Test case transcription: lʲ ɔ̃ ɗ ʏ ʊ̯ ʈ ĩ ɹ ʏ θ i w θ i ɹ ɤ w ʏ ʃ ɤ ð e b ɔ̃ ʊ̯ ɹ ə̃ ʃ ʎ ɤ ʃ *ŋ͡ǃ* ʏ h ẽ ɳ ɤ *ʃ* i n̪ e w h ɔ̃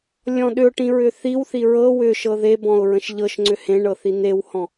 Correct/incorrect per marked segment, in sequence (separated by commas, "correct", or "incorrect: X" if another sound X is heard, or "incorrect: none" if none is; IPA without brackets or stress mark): incorrect: ŋ͡ǀ, incorrect: θ